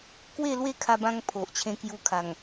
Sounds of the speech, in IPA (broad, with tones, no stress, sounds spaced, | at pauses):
k w e˥˧ l w e˥˧ kʰ a˧ b ã˧ ŋ pʰ o˨ ʔ t͡ɕʰ ẽ˧ k j u˧ kʰ a˨˩ ŋ